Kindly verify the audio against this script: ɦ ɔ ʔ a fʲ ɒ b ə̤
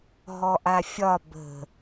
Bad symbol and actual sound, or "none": none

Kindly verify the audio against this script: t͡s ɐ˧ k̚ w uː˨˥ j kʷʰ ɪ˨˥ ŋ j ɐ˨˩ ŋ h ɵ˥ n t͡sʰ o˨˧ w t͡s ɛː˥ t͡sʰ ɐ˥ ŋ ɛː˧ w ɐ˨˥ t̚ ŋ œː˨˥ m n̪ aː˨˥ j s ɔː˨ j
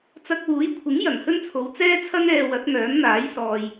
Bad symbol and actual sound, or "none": none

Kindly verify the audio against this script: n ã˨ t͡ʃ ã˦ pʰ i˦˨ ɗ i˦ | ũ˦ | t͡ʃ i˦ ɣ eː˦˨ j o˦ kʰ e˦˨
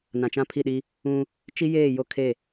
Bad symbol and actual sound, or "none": ɣ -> j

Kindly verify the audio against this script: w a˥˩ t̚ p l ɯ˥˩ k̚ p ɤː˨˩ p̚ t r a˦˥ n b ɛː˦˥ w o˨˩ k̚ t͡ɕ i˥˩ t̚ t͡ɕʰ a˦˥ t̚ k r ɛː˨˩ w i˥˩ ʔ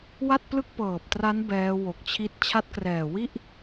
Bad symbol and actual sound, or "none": t͡ɕ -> t͡ɕʰ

